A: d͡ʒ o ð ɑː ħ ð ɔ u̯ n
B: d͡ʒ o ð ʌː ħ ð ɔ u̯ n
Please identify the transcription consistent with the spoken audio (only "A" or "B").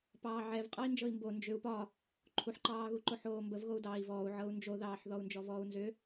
A